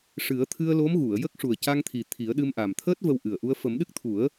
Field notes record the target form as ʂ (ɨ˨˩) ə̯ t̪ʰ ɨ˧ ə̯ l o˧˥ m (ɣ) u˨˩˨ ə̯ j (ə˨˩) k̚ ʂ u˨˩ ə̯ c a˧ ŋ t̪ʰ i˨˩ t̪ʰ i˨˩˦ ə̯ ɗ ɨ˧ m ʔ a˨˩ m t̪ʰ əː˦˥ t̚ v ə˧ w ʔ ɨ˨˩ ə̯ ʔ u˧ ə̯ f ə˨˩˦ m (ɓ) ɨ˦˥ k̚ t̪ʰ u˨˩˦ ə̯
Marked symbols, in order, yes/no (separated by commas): no, yes, no, no